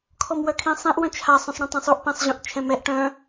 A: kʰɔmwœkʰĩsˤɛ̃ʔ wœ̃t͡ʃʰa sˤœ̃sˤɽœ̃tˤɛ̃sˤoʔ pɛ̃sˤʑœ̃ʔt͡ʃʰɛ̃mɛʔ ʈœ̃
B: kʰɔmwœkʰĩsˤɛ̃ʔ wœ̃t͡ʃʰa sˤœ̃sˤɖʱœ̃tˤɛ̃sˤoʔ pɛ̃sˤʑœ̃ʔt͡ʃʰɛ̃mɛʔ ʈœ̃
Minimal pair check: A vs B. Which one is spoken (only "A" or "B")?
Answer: A